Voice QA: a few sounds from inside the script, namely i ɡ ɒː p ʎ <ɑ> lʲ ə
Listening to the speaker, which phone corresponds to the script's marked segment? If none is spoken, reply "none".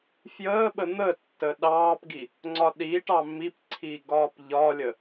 ɒ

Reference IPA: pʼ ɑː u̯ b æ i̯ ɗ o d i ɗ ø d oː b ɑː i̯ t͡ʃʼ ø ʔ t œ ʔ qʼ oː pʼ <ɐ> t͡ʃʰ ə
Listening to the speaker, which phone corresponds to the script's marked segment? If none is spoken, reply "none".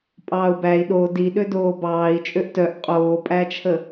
æ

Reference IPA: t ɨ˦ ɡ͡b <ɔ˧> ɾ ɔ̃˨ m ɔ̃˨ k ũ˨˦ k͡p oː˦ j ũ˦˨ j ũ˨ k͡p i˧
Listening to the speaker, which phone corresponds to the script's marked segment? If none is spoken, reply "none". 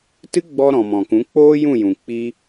ɔ˧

